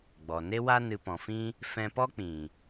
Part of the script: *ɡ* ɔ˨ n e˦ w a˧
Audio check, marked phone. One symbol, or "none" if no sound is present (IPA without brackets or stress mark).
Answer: ɡ͡b